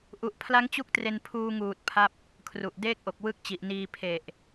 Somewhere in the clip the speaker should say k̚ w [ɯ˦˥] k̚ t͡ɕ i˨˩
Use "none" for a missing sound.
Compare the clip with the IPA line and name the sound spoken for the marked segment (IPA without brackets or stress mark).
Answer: ɯ˦˥